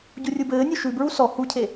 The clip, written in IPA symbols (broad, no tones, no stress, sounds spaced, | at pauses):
ɟ u rʲ u b ɘː nʲ u ʃ ʉ b ɹ u s ɔ h u cʰ e